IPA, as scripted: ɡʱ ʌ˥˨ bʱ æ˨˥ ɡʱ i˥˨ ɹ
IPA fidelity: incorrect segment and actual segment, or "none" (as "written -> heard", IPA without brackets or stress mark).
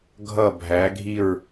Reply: none